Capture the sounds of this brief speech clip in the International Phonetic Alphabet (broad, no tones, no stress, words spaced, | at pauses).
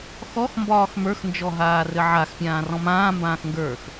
xɔx mbɒːxmə˞xnd͡ʒɔ ɦaːrɘʕaxpʲãː rɔ̃mãː mbãːxŋɡə˞x